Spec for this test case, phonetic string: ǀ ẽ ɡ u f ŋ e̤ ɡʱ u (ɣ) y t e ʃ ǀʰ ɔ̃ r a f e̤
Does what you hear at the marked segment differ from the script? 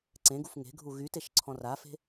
no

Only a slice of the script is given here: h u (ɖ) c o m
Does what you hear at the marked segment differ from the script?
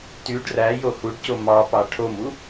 no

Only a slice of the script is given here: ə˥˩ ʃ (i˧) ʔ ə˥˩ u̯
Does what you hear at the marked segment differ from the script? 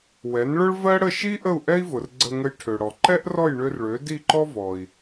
yes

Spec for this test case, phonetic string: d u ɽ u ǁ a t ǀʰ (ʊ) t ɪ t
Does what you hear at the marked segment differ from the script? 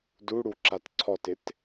yes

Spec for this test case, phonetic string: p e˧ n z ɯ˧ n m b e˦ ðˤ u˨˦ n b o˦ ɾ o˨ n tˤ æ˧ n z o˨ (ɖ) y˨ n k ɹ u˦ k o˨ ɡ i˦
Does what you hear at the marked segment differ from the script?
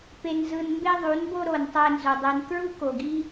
yes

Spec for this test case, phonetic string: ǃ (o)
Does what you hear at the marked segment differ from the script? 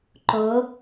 no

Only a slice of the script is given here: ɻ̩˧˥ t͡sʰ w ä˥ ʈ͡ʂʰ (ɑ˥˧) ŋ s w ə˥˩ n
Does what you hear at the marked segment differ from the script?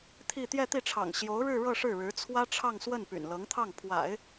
no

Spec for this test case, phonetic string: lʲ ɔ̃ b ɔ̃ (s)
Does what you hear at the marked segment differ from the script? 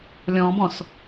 no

